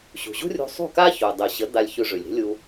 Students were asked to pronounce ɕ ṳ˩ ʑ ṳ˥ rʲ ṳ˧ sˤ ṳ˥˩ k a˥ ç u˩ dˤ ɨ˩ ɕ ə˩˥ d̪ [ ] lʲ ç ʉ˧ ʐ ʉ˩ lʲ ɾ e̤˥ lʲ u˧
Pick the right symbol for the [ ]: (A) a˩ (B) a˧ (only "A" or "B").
B